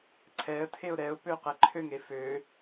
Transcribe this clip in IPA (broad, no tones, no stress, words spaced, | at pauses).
ǀʰɛə̯tʰeʊ̯ ɾɛʊ̯pø qɛǃʰøŋe fø